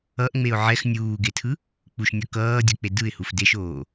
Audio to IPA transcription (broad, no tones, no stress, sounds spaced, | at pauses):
ʌ ʔ ŋ͡m e ʊ̯ ʕ ɛ x nʲ uː ɡ e tʰ ɯ | k͡p u ʃ nʲ ʌ k ʌː dʲ ʌ k͡p e d ɯ ɪ̯ h u f d e ʃ oː